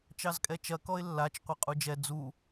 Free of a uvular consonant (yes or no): no